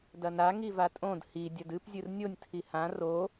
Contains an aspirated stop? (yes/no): yes